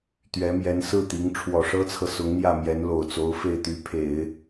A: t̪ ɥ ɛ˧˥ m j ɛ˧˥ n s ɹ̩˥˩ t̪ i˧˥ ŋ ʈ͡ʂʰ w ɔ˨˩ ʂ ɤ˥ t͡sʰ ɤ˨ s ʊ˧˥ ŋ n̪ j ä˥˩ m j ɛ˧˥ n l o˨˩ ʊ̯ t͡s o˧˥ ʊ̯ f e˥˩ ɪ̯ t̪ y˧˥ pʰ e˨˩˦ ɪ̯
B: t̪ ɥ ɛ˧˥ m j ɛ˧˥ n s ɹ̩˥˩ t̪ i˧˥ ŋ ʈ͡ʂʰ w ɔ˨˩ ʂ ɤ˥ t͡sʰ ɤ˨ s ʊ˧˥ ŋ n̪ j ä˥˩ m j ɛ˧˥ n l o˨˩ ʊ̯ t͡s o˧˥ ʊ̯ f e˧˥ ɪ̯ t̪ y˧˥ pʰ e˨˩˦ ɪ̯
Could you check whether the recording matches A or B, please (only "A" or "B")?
A